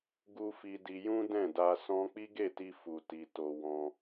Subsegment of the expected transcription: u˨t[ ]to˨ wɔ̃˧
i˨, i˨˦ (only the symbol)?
i˨